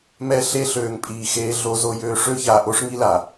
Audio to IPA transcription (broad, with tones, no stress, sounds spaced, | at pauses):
m ɛ˦ ɬ e˦ ɬ øː˨ ŋ pʼ iː˨ x eː˦ ɮ o˦ z o˦ j øː˦ ʂ ø˦ ç aː˨ ʔ o˦ ʂ ŋ i˦ l a˨